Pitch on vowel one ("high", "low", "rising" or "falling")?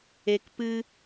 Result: low